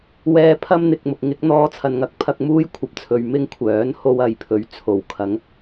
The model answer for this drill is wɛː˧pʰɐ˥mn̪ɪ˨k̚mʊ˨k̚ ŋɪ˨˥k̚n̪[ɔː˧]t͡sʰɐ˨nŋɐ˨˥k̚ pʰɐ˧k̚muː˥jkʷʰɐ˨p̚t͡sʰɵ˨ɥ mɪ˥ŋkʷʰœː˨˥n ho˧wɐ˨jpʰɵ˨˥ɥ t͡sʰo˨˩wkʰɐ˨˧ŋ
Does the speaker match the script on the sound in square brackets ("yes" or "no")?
yes